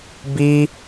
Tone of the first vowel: high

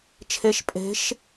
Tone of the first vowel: rising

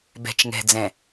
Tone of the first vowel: low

